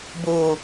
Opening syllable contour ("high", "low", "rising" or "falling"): low